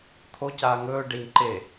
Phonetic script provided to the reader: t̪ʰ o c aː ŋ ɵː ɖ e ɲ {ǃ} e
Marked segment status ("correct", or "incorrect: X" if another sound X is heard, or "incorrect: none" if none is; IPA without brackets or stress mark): correct